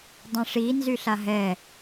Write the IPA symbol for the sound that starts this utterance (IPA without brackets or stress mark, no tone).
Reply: dˤ